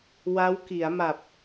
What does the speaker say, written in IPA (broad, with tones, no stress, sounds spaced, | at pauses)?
w a˦˥ w k i˩˦ a̯ m a˨˩ p̚